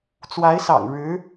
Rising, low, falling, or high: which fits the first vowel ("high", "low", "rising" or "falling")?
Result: rising